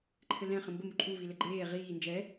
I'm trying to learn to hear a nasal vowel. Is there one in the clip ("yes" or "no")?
yes